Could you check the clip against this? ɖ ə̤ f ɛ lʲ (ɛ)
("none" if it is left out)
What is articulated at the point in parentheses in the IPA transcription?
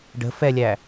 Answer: æ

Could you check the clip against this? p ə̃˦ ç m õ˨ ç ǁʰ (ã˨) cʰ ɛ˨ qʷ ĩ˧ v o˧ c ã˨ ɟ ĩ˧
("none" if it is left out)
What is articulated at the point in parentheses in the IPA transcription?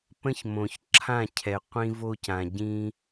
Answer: ã˦˨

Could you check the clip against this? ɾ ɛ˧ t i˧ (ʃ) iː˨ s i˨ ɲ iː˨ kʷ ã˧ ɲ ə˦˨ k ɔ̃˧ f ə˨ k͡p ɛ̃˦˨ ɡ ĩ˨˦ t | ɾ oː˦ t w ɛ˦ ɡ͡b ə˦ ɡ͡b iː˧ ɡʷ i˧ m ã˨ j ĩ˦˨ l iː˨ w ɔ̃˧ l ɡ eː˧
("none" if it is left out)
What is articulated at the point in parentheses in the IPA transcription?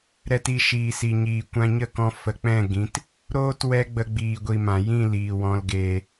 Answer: ʃ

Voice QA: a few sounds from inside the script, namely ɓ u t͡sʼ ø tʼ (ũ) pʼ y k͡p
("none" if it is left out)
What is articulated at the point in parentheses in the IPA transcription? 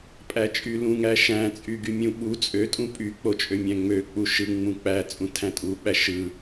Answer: ũ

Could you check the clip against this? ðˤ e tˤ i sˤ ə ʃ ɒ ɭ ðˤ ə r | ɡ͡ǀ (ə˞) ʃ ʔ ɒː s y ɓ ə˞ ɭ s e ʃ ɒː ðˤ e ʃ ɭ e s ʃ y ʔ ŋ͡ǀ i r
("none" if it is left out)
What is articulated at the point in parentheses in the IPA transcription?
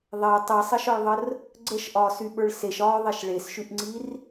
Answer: ə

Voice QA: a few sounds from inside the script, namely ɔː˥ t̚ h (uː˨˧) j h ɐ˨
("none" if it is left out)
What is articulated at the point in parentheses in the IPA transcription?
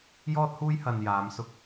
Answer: uː˥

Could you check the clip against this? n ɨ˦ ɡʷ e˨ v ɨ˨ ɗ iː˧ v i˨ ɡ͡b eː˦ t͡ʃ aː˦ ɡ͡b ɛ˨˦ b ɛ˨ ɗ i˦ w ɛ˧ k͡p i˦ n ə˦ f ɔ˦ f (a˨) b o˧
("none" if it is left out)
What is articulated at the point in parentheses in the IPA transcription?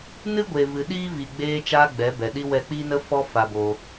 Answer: a˧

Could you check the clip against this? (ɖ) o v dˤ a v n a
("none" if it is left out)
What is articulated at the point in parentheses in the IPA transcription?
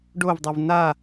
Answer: ɖ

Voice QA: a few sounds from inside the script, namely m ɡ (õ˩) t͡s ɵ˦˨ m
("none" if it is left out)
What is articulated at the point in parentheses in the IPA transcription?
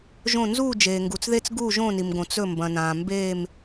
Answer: õ˩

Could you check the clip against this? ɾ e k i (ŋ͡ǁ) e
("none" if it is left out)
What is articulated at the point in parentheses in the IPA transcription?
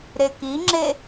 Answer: ŋ͡ǁ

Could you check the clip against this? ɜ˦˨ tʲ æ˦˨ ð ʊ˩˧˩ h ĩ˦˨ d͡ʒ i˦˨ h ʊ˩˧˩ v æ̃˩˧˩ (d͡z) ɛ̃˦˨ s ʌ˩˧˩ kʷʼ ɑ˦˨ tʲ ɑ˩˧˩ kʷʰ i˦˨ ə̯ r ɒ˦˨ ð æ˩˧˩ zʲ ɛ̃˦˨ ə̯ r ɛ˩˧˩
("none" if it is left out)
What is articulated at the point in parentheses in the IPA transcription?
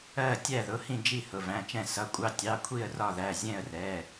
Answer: t͡ʃ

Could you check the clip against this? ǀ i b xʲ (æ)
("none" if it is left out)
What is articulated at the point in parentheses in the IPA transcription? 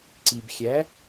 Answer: æ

